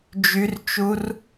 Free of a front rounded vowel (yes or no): no